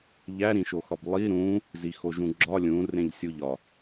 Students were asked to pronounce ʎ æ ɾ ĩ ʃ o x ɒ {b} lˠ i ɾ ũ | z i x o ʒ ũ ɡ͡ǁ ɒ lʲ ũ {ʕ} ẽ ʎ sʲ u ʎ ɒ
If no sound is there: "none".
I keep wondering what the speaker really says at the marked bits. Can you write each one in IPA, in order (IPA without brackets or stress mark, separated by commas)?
b, r